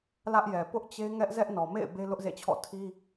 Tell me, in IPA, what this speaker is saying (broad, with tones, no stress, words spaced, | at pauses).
lä˦ʔjɛ˨ pʊ˦ʔt͡ɕe˦ ŋɛ˦ʔ zɛ˦ʔnɔ˨mḛ˦˨ɪ̯ be˦lʊ˦ʔzḛ˦˨t͡ɕʰɔ̰˦˨ tʰi˦